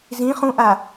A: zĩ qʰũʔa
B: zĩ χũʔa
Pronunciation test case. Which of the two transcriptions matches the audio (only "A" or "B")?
B